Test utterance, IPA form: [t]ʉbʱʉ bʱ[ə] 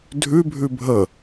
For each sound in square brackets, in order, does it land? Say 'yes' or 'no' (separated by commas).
no, yes